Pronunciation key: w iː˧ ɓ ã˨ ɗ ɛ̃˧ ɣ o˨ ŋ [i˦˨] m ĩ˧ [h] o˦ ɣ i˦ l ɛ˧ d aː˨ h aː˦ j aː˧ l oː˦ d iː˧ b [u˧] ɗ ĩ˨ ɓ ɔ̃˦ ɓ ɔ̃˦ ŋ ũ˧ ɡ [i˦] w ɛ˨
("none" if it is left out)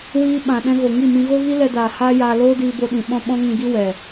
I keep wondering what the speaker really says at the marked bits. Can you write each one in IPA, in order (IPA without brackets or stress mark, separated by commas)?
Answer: i˦˨, ɣ, o˧, i˦